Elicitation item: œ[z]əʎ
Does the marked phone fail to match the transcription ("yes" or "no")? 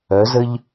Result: no